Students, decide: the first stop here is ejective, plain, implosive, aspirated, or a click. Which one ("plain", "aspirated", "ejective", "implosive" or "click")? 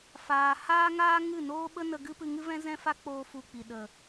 implosive